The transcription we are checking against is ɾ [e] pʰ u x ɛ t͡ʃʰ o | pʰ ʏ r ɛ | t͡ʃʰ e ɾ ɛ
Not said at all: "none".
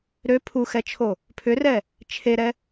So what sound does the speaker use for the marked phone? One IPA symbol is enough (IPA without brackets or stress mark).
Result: ø